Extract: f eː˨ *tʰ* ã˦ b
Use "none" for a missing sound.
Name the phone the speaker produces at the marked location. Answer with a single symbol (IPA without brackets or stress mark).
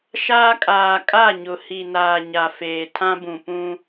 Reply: tʰ